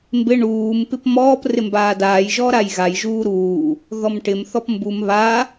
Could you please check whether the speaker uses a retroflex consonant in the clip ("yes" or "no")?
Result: yes